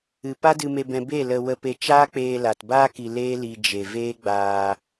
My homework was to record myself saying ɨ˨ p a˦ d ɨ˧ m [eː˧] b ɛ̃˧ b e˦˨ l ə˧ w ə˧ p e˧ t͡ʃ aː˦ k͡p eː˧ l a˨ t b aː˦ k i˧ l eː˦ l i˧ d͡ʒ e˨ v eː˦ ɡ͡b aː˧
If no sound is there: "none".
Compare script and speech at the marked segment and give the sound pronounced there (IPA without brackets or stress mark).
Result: e˧